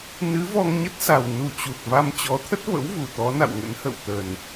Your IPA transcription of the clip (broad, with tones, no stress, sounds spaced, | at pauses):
n ɨ˨˦ v ɔ˧ ŋ ɲ ə˦˥ t̚ s a˨˩ w n u˨˩ t͡ɕ u˨˩ t̚ v a˧ m t͡ɕ ɔ˨˦ t̪ʰ ə˦˥ t̚ v ə̰˧˥ w v u˧˩ t̪ ɔ˨˦ n a̰˧˨ w ŋ ə̰˧˥ n h ə̰˧˨ w t̪ ə˨˩ n